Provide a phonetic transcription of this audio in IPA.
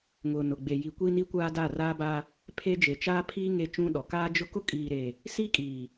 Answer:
ŋʊ˨ nʊ˨ɡ͡be˨ji˨ kʷiː˦ni˦kʷaː˦ da˦˨raː˦ba˦ | pʰe˦ d͡ʒe˨t͡ʃaː˦pʰiː˦ ŋe˦t͡ʃũ˦ɗɔ˨ kaː˦d͡ʒʊ˦ kʊ˦kʼiː˨ɾe˨ | siː˦kʼiː˨

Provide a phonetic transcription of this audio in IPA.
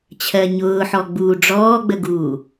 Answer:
t͡ɕʰɜɲʊːħɔ ɡ͡buːɖ͡ʐɔːɡ͡bəɡuː

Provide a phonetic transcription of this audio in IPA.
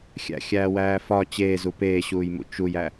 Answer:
xʲæ̰xʲæːwæː fɒ t͡ɕeːzu peːɕuːjmṵ t͡ʃujæ

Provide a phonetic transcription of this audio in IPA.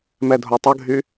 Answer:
mɛdʱotˤəɡʱy

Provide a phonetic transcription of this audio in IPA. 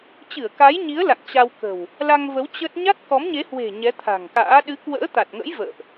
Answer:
t͡ɕɨ˧˩ə̯ka˨˦jɲi˨˦ə̯ la̰˧˨ŋt͡ɕa˧wkə̤˨˩w | la˧ŋvə˨˦w t͡ɕə˦˥t̚ ɲa˦˥t̚kɔ˨˦mɲe˨˦hwe̤˨˩ ɲɛ˨˦t̪ʰa̤˨˩ŋka̰ː˧˥ ɗɨ˨˦kwə̰ː˧˥t̪a˨˩t̚ŋə̰˧˥j və̰ː˧˨ʔ

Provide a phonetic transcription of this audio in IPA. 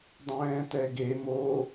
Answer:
dˤɛ̃ːtɛɡe mo

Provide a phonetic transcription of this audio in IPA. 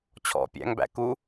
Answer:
t͡ɕʰɔ̰ pʲæ̰ŋbæ̰ ku

